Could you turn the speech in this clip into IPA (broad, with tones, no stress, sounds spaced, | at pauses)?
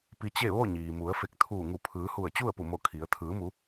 p i˧ t͡ɕ e˥˨ ʋ o˥˨ ɲ iː˩ m u˩˧ ə̯ f e˧˩ k̚ t̪ʰ uː˧˩ ŋ u˧˩ pʰ ɯː˩˧ h u˧˩ ə̯ t͡ɕ u˥˨ ə̯ p u˧˩ m o˧˩ kʰ i˩˧ ə̯ t̪ʰ ɯː˩˧ m u˩˧